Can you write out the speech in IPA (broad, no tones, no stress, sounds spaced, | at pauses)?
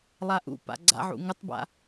lˠ a ʔ ṵ p a̰ ɡ͡ǀ a̰ ʕ ṵ ŋ ɘ tˤ b a̰